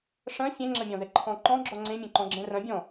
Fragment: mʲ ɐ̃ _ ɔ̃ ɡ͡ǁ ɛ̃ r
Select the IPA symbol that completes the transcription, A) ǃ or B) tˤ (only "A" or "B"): A